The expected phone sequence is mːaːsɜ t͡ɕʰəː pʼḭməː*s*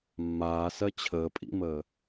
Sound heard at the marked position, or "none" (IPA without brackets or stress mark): none